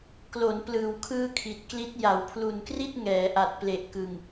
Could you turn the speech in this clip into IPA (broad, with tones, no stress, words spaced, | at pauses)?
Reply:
klo˩˦nplɯː˩˦wkʰɯː˧ kʰi˨˩t̚kli˦˥t̚ ja˩˦wpʰlu˨˩nkri˥˩t̚ŋɛː˩˦ ʔa˨˩t̚ ple˨˩ʔkɯ˨˩ŋ